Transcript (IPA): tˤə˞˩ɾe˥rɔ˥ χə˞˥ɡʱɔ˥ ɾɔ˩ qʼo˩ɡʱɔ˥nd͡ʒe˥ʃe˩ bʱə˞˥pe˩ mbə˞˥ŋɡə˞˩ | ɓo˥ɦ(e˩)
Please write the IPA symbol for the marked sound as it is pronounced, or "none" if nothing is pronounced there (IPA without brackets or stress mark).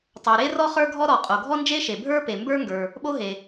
e˩